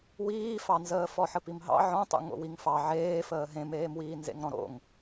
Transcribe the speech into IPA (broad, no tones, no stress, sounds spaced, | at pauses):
w iː f ɑ n z əː f ɔ ħ ə p i m ɦ ɑ̰ ʕ ɔ̃ tˤ ṵ ŋ o̰ w i ŋ f ɑ ʕ eː f əː ɦ ẽ m eː m w iː n z ḛ ŋ ɾ ɔ̃ ɾ o̰ ŋ